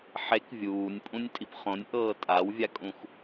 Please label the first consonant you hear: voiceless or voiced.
voiceless